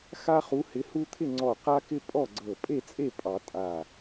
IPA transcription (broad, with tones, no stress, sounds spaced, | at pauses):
x a˦ χ u˨˦ h ɪ˨˦ h u˦ t̪ʰ ɪ˥˨ ŋ͡ǀ ɔ˧˩ q a˦ k ɪ˦ pʼ ɔ˥˨ ɡ͡ǀ ɤ˧˩ pʼ e˥˨ t͡sʼ e˥˨ pʼ ɑ˨˩˦ tʼ a˧˩